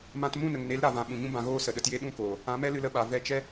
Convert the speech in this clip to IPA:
mã˧t mũ˦˨nə˨ŋne˨˦l ɾa˧vã˧ ɓũ˨ɲũ˦ bã˧ɣoː˦ sə˨ɗə˧tje˦ ɗũ˦˨koː˨ | ã˨˦mɛ˦ lɨ˧lə˧ɓa˨ vɛ˧t͡ʃɛ˦

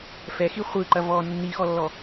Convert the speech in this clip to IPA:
fɛxi χʷɯǃɐ vɔ nːixɔlːɔ

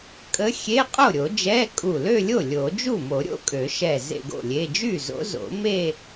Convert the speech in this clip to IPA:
kʼə˧˥xʲe˧˥˧ qʼo˥˩ɾʲo˨˩˦d͡ʒɛ˧˥˧ kʼu˧˩lø˥˧lʲo˥˩ lʲo˨˩˦ d͡ʒu˥˩mo˨˩˦ ɾʲo̰˧˥kʼø˨˩˦ ʃɛ˧˩ zḛ˥˧ɡo̰˥˩lʲe˧˥˧ d͡ʒy˥˩zo̰˧˥zo̰˨˩˦me˥˧

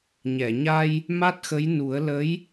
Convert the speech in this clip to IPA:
ɲɛ˨˩˨ɲa˧j | ma˦˥t̚xə˧˥j nu˨˩˦ə̯lə˧˥j

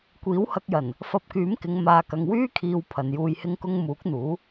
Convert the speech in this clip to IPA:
kʷiː˨˥whɐ˧k̚jɐ˨˩n | fɐ˧p̚kyː˨˥mkɪ˨˧ŋ maː˨kɐ˨ŋ wyː˥kʰiː˨w pʰɐ˨njuː˧jhɪ˥ŋkʊ˥ŋ muː˨˥k̚n̪uː˨˥

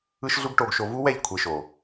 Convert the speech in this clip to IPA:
ɯ˦ʃɮu˦ɡʈo˧ɡʃo˧ vu˦wɛ˦˨ʎ kʷʰe˧ʃo˨

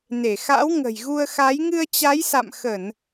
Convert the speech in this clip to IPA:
ne˧˩xa̰˧˥w ŋə̤˨˩jɣu˧ə̯xa˨˦j ŋɨ˧ə̯t͡ɕa˨˦jsa̰˧˨m xə˧˩˨n

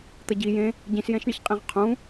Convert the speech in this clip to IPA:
t̪ɐɟi jẽ | ɟĩsjɛ̃ʃɳiç qʼĩʁqʰũ

